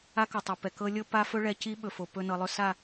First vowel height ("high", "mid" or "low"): low